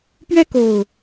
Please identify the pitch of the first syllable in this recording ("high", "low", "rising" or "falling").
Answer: high